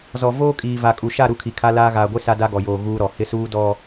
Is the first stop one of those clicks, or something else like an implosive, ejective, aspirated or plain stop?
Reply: ejective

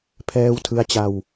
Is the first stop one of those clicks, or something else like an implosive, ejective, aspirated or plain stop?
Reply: aspirated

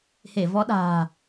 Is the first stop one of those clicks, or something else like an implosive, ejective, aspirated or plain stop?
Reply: implosive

